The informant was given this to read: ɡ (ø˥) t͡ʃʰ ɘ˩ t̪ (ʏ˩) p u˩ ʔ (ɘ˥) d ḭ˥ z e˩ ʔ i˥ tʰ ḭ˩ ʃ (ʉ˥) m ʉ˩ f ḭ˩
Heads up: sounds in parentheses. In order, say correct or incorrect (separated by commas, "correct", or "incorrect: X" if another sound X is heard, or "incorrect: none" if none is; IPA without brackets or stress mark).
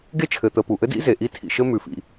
incorrect: e˥, incorrect: ə˩, correct, incorrect: ɘ˥